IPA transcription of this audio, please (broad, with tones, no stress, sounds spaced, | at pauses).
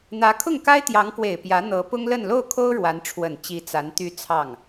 n̪ ä˧˥ kʰ ʊ˥˩ ŋ k a˥ ɪ̯ t̪ j ɑ˧˥ ŋ k w e˨˩ ɪ̯ p j ä˧˥ n̪ ɤ˧˥ p ʊ˥ ŋ l ə˥˧ n l o˥˩ ʊ̯ kʰ o˥ ʊ̯ ɻ w a˧˥ n ʈ͡ʂʰ w ə˨˩ n t͡ɕ i˧˥ t͡s a˧˥ n t̪ y˥ t͡sʰ ɑ˥˩ ŋ